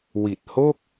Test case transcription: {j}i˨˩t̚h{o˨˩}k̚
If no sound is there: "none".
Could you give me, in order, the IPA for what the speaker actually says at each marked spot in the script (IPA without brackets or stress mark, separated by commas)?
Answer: w, o˥˩